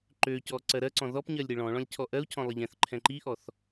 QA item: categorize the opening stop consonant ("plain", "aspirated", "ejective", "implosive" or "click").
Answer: click